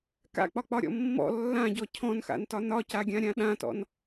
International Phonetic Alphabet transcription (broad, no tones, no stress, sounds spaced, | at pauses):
k a̰ k͡p ɒ k͡p ɒ ɾʲ ɔ̰ mː ɔ̰ lː ã ɟ ɔ cʰ ɔ̃ n x a̰ n t ɒ n ɒ c a ɡʲ ã ɾʲ ã ɗ ã t ɔ̰ n